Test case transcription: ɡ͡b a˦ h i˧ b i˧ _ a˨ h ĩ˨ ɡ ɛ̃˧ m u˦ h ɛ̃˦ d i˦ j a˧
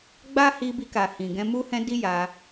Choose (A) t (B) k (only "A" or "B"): B